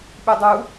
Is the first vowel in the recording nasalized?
no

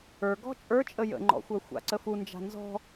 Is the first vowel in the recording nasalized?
no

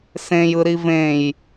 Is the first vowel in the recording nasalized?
yes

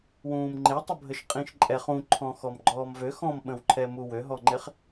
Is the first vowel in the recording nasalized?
yes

